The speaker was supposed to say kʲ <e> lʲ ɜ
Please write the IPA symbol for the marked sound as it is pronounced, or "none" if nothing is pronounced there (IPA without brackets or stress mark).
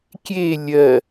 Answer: e